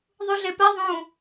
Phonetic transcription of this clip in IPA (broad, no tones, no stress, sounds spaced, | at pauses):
ðˤ u ɮ e p ɛ ðˤ ũ